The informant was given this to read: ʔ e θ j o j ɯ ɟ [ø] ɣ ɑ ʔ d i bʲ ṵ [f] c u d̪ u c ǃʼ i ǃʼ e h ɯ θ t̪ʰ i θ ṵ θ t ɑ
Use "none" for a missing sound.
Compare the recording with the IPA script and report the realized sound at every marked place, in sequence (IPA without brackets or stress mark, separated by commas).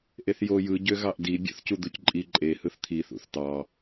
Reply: ø, θ